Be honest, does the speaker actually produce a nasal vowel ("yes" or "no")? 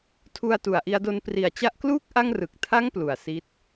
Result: no